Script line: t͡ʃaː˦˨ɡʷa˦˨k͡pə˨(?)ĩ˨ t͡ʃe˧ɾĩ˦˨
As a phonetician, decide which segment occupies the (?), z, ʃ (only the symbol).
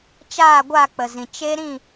z